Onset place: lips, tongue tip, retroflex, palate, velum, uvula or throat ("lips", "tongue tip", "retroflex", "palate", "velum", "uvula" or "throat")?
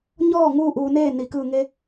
palate